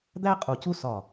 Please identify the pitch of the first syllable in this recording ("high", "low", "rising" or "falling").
high